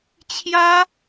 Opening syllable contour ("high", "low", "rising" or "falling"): high